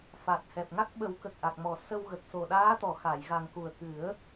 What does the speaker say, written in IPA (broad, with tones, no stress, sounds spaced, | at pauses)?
f a˨˩ t̚ h ɛ˨˩ p̚ ŋ a˦˥ k̚ ɓ ə˨˩˦ w k ə˨˩ k̚ ʔ a˨˩ k̚ m ɔ˨˩˨ s ə˧ w ɣ ə˨˩ k̚ s o˨˩ ɗ aː˧˥ t̪ ɔ˨˩˨ x a˨˩˨ j ɣ a˨˩ ŋ k u˨˩ ə̯ k ɨ˨˩˦ ə̯